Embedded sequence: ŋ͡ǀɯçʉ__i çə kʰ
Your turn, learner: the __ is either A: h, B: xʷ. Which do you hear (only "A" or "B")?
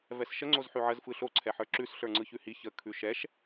A